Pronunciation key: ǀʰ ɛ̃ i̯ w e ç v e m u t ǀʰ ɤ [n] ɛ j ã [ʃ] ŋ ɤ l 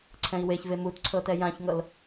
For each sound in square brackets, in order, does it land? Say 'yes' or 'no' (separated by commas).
no, no